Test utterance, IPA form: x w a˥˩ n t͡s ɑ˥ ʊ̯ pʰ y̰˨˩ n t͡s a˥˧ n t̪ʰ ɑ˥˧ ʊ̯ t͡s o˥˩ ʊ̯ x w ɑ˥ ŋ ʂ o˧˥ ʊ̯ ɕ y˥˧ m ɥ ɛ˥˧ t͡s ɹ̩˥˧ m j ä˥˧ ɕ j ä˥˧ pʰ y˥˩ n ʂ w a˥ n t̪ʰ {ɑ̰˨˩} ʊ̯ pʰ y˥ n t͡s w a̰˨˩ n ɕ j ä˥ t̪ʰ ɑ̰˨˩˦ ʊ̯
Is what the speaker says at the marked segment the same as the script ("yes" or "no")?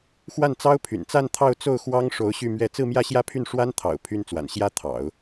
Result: yes